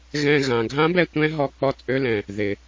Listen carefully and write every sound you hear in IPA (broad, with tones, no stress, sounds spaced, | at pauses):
ɣ ɛ̃˧ ɣ ã˩ ɡʱ ã˧˥ b ɛ˩˧ tʷ ɛ̃˧˥ ɦ ɔ˧ k͡p ɔ˧˥ t͡sʼ ø˧˥ l ɛ̃˩ | ð ɪ˩